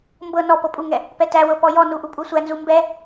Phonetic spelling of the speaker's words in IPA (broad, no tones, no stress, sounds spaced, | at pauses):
m b ɤ n ɔ p ɤ pʼ u ŋ ɛ | p ɛ t æ w ɤ p ɔ j ɔ n u ʔ u pʼ u sʷ æ n z u m b ɛ